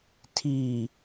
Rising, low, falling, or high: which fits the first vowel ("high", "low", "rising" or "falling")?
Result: low